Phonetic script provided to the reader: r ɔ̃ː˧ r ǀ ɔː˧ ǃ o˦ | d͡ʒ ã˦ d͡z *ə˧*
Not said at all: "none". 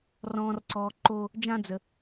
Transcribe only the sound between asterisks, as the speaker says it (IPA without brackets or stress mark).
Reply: ə˧